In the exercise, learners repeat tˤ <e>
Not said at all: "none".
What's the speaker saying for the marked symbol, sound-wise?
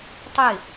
e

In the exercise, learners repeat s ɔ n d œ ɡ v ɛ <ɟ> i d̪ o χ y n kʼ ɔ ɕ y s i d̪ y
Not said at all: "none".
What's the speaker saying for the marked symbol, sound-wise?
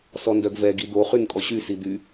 ɡ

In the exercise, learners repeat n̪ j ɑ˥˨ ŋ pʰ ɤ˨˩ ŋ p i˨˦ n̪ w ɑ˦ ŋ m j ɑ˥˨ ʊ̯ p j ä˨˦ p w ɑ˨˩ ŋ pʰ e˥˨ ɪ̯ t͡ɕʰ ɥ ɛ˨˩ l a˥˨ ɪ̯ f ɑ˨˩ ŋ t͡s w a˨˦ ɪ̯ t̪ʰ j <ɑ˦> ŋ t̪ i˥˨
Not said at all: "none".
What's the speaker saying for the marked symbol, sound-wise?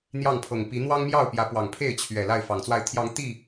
ɑ˨˦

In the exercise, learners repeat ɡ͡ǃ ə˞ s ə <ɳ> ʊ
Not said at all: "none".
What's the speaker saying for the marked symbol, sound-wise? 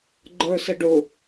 ɖ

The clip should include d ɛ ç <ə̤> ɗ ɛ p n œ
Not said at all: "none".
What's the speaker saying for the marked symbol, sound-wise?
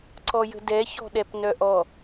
ɔ̤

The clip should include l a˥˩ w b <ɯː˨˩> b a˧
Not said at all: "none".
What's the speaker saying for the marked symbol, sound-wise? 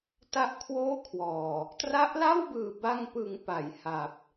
ɯː˨˩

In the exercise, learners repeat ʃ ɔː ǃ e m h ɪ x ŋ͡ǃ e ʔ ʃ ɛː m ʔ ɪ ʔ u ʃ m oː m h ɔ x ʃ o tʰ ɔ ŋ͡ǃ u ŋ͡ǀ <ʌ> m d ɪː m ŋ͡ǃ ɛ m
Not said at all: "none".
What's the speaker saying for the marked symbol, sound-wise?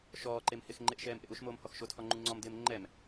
ɔ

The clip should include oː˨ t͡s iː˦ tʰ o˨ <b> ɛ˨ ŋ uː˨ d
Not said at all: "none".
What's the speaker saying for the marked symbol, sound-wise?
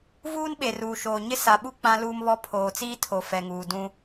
f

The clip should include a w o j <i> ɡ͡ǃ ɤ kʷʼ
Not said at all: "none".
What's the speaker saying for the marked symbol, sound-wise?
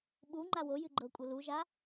ɨ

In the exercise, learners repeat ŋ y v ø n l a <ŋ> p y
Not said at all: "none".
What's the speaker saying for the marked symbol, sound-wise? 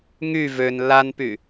n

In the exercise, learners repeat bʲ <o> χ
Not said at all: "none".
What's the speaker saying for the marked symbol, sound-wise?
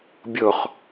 o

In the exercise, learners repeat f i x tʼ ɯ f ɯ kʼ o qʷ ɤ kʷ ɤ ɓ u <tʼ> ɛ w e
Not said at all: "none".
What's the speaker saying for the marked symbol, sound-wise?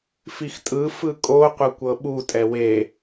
tʼ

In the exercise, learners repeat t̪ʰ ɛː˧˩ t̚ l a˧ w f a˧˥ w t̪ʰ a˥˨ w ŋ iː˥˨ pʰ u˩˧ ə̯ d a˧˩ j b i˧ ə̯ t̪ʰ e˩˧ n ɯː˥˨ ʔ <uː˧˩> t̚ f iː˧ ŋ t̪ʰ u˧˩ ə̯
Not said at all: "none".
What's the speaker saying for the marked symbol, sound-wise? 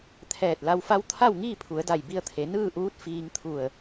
uː˧˥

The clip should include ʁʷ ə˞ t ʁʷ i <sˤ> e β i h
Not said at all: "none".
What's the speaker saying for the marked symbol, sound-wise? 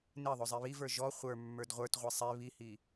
sˤ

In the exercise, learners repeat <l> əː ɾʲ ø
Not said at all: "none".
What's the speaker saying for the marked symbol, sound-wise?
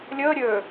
lʲ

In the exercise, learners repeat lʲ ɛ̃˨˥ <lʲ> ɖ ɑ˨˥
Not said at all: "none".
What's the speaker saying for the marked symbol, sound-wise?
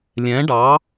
none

